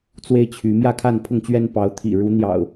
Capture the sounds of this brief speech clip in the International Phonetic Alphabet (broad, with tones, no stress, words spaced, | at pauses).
t͡swe˦ɪ̯t͡ɕʰy˨˦ mjä˥˨kʰa˥˨npʰʊ˥˨ŋt͡ɕɥɛ˦n pɑ˨˦ʊ̯t̪ʰḭ˨˩ ɻu˨˦n̪jɑ̰˨˩ʊ̯